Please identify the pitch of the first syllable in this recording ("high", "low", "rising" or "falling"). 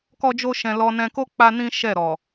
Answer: high